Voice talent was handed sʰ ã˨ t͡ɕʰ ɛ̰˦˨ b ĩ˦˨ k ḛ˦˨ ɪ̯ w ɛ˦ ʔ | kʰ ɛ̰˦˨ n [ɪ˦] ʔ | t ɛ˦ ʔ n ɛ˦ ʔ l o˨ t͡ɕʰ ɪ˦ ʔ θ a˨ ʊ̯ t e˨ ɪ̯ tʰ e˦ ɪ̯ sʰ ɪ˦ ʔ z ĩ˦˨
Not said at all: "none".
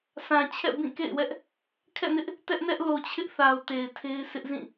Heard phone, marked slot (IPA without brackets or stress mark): ɪ˦